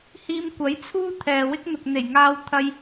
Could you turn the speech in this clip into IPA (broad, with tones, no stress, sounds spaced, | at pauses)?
h iː˧ m kʷ ɐ˨˥ j t͡sʰ uː˥ t̪ʰ ɛː˨ w ɪ˥ k̚ n̪ ʊ˨ k̚ n̪ e˨˩ j ŋ aː˧ w t̪ʰ ɐ˧ j